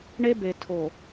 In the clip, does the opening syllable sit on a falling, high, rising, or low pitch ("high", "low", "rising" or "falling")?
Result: high